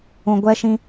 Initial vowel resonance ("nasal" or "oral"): nasal